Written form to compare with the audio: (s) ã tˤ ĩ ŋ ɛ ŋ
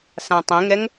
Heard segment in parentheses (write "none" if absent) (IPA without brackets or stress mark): s